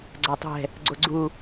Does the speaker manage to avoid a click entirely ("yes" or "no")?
no